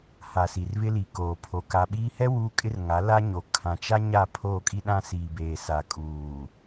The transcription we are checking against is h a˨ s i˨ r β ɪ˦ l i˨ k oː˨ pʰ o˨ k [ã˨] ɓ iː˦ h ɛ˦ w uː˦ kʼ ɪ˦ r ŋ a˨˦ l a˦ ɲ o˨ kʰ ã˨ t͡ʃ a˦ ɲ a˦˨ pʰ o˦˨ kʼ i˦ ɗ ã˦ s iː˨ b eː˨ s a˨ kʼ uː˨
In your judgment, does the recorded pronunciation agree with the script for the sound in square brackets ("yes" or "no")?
no